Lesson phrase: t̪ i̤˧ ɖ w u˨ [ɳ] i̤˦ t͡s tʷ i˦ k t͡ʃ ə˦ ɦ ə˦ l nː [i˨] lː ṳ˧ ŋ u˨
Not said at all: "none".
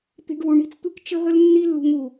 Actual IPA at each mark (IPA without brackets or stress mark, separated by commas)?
ɳ, i˦